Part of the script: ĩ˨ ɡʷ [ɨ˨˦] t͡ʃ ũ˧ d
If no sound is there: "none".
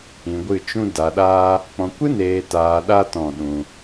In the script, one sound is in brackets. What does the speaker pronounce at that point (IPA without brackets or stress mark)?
ɨ˦˨